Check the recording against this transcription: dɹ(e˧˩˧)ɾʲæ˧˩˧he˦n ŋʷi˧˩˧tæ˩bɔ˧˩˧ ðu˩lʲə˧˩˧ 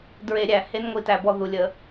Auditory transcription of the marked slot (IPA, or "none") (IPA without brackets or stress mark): e˧˩˧